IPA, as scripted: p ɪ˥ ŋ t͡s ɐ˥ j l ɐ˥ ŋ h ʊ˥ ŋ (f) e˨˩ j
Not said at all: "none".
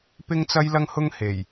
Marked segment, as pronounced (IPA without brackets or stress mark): h